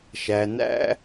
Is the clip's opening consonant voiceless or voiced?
voiceless